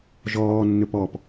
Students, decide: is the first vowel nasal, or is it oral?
oral